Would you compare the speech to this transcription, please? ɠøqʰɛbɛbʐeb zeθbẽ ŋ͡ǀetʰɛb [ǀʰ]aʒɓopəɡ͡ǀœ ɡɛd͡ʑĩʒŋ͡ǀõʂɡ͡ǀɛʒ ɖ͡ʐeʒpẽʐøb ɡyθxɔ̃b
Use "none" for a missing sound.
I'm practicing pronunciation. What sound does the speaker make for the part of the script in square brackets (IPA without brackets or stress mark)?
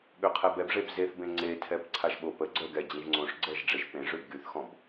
ǀʰ